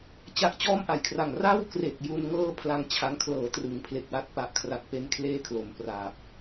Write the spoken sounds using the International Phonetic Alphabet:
t͡ɕ a˦˥ ʔ t͡ɕ ɔː˥˩ m ʔ a˩˦ j kʰ r a˨˩ ŋ r a˥˩ w k r e˨˩ k̚ j u˧ n ŋ ɤː˥˩ pʰ l a˧ ŋ t͡ɕʰ a˦˥ ŋ kʰ l ɤː˩˦ t r ɯ˩˦ ŋ pʰ l e˨˩ k̚ w a˦˥ t̚ p a˨˩ ʔ kʰ r a˨˩ k̚ p e˦˥ n kʰ l eː˥˩ kʰ l o˩˦ m p r aː˨˩ p̚

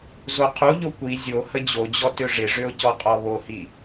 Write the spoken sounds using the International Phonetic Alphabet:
z o qʰ u ʎ o kʷ i zʲ o h ə d͡ʑ o d͡ʑ ɔ t ø ʐ ɪ ʐ ø ʊ̯ c ɔ qʼ ɔ β o h i

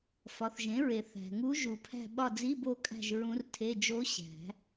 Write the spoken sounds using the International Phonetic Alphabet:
f ɒ˩˥ θ ʒ ẽ˩˥ ɹ e˨ θ æ̤˨ ŋ u˧˥ ʒ u˨˩˦ pʰ æ̤˦˨ ɓ ɒ˦˨ d͡z i˧˥˧ b o˦˨ kʼ æ̤˦˨ ʒ ɹ ũ˧˥ r tʰ e˧˥˧ d͡ʒ o˧˥ ɕ æ̤˨˩˦

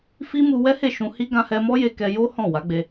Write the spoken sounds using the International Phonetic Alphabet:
f i˦ m u˧ w ɛ˦ h e˦˨ ʃ ũ˧ h i˦ ɡ ã˧ h ɛ˧ m ɔ˦ j e˧ k ɛ˧ j o˦ h ɔ̃˦˨ w a˨˦ ɡ͡b e˧

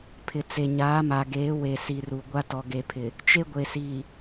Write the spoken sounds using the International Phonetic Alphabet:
pʰ ɪ˨ t͡s e˨ ɲ aː˨˦ m a˨ ɡ eː˨˦ w e˨ s i˨ r u˨ ɡʷ a˦ t ɔ˨ ɡ e˨ pʰ ɪ˨ | t͡ʃ e˦ ɡʷ e˨ s iː˨

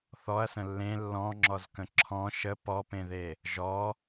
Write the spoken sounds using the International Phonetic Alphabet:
θ ɔ ɐ̯ s ə̃ lː ẽ lː ɔ̃ ŋ͡ǁ ɔ z k ə̃ ǁʰ ɔ̃ ʃ ə p ɔ p ẽ ð e | ʒ ɔ

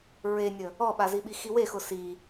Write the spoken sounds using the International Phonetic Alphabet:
ɹ e nʲ ə | ɔ ɓ a z i ɓ i x i w e x ʊ s i

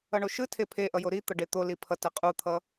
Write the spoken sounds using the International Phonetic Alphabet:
ʌ ɳ o ʃ ɯ tʰ e pʰ e ʔ ʌ j o ɾ i t̪ ʌ ɖ e t̪ o l i pʰ ʌ t ɛ qʼ u t̪ʰ ʌ

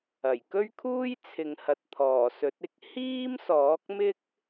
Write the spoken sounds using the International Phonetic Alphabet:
ɐ˨˩ j k ɵ˥ ɥ kʰ uː˥ j t͡sʰ ɪ˨ ŋ h ɐ˨ t̚ t̪ʰ ɔː˨˩ s ɵ˨˥ t̚ ɪ˧ k̚ h iː˥ m s ɔː˨˥ k̚ m ɪ˥ k̚

